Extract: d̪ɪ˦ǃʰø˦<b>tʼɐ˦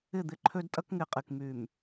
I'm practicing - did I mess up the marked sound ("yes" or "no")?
yes